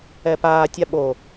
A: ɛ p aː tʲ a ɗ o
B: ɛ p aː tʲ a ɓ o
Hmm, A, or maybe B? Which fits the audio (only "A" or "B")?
B